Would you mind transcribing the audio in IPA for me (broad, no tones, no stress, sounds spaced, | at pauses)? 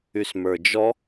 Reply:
y s m ə˞ d͡ʒ ɔ